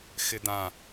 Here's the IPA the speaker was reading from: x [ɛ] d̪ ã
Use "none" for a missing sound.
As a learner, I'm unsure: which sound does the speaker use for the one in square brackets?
ɪ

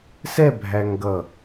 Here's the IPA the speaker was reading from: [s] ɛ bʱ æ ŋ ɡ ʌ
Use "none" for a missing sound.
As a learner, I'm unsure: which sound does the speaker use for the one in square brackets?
s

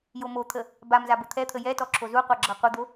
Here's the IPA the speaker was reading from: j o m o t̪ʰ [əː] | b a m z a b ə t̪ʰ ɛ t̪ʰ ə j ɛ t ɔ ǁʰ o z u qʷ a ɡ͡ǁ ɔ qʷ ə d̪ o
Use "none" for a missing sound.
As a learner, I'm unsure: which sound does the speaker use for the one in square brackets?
ə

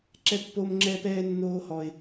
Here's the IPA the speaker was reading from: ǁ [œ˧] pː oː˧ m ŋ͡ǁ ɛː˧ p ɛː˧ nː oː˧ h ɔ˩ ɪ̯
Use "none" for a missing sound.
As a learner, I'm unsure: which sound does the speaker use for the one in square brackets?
ɛ˧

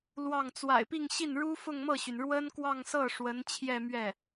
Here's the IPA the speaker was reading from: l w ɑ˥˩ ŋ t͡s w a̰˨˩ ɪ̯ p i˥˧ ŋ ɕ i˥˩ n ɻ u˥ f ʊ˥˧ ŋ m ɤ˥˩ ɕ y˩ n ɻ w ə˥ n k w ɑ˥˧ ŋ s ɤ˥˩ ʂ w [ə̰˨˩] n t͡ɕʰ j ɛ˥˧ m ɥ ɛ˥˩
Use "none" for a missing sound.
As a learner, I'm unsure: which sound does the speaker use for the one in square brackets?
ə˧˥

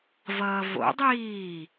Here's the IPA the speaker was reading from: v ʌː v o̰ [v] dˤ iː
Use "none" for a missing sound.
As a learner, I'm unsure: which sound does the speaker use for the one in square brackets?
none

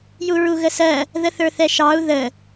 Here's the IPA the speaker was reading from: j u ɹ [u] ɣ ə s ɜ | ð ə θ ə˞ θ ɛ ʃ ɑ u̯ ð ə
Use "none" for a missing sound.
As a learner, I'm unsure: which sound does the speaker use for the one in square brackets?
u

